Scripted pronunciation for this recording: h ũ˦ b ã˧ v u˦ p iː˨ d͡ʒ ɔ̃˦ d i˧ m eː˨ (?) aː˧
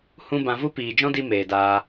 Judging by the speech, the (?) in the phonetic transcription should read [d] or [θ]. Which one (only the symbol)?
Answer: d